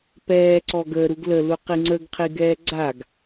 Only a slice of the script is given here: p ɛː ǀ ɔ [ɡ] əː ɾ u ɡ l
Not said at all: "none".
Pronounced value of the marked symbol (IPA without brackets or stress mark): ɡ